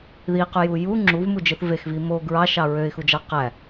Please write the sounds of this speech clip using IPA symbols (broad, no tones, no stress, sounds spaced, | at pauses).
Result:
ð i q y j u j u ŋ͡ǁ u v m u d͡ʒ ɯ θ v e x v i m o ɡ ɹ ɑ ʃ ɑ ɹ ø ɪ̯ x u d͡ʒ ɑ q æ